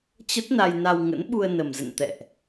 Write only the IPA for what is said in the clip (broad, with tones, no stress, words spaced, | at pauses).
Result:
t͡ɕə˦˥t̚na˧jna˧w ŋə̰˧˥n ɓu˧ə̯nə˨˩mzə̰˧˨n t̪ɛ̰˧˨ʔ